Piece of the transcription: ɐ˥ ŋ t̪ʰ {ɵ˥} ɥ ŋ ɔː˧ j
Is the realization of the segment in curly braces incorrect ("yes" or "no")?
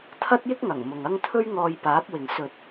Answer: no